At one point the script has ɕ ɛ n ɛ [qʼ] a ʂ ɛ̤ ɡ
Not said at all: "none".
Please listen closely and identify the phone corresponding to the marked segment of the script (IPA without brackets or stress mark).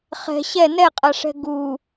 qʼ